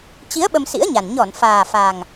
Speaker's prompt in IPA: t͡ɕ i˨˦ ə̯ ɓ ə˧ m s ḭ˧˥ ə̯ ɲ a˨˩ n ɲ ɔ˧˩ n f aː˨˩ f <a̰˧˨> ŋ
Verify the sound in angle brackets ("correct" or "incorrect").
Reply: incorrect